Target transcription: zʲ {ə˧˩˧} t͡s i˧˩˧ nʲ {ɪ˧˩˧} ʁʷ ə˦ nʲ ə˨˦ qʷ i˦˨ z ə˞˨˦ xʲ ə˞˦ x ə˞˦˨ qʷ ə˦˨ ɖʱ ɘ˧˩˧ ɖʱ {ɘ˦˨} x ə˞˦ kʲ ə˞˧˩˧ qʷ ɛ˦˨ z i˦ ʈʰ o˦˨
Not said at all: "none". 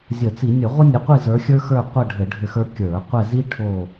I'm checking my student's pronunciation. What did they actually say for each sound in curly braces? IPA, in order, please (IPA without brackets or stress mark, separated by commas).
ə˧˩˧, ə˧˩˧, ɘ˦˨